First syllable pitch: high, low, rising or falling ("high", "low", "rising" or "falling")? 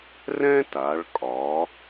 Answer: high